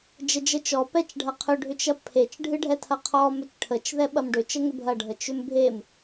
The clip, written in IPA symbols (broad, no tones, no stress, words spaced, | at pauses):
d͡ʒəd͡ʒət͡ʃɔ pɛt͡ʃɖʱɐqʰʏ ɖʱʏt͡ʃɐpʰet͡ʃ ɖʱɨɖʱɛtʰɐqʰɔ mʏt͡ʃʈʰət͡ʃ ðɛɓɐmɖʏ t͡ʃəŋʏbʱɐ ɖʱət͡ʃʏmbʱem